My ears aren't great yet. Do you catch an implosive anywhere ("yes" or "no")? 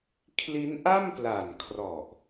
no